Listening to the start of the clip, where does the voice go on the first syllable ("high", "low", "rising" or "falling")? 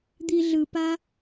low